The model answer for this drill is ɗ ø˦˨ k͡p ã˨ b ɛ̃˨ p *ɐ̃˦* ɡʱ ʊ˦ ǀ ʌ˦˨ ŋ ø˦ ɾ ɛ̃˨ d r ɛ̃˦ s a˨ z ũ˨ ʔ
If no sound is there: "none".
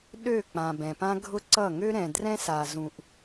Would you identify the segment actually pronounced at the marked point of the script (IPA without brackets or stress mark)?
ã˦